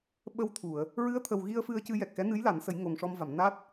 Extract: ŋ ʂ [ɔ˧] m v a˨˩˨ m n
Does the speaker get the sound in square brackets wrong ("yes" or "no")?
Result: no